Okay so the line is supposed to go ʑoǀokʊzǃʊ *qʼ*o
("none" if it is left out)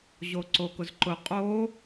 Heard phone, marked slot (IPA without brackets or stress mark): qʼ